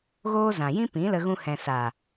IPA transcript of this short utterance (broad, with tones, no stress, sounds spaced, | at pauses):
ɣ oː˦ z ã˨ j ĩ˦ p ĩ˨˦ l ə˧ ɣ ũ˧ h ɛ̃˨ s a˨